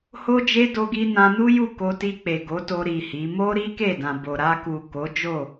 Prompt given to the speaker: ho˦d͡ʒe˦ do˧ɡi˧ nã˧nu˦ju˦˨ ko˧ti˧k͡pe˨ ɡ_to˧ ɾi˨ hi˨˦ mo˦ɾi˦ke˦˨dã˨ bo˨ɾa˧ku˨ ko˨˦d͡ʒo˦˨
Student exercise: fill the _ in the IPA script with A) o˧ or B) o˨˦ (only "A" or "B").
B